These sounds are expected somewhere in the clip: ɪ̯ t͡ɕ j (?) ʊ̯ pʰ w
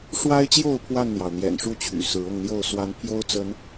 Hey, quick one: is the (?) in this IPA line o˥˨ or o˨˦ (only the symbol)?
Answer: o˥˨